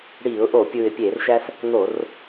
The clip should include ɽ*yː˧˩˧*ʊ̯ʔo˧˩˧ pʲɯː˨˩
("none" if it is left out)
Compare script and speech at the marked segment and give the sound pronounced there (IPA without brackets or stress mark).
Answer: iː˧˩˧